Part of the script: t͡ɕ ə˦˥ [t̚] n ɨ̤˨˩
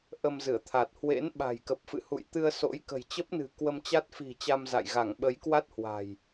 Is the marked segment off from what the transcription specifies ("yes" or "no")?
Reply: yes